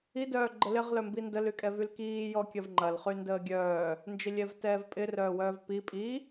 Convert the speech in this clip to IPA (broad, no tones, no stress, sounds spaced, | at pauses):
i d œː ɡ͡ǃ ə l ɪ ʁ l œ m b i n d ə l y kʼ ɛ v y l k iː j ɔ kʲ ɐ v ŋ͡ǃ ɐ l χ y n d əː ɡʲ œː | n d͡ʒ ɪ lʲ ɛ v t ɛː v pʼ ɪ r œː w œː v p i pʼ i